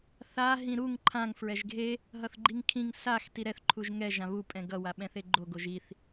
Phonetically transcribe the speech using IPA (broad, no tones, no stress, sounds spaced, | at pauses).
θ a ɦ ĩ ɾ u ŋ ǃʰ ã ŋ f ɹ ɛ ʒ ɡʱ e | ɦ ʌ θ ɡ͡ǃ i ŋ kʰ ĩ ŋ s a x t i ɾ ɛ θ ǃʰ u ʒ ŋ ɛ ʒ ã β u pʼ ɛ̃ ɡ ʌ w a ɓ ɛ̃ θ e ɡ͡ǃ o ɡ o ʒ i θ